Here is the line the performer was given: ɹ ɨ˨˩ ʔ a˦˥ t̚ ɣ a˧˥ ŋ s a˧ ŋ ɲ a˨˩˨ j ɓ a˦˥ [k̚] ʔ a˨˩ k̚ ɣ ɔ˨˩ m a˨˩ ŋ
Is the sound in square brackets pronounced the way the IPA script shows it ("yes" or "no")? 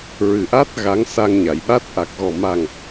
no